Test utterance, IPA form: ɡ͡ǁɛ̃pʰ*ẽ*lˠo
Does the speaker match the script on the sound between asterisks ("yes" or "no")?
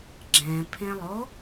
yes